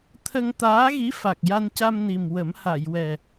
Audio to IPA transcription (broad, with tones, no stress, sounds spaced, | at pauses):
t̪ʰ ə˧ ŋ t̪ aː˧˥ ɣ i˧˥ f a˨˩ k̚ j a˧ n c a˧ m n i˨˩ m w ə˨˩˦ m h a˨˩˨ j w ɛ˨˩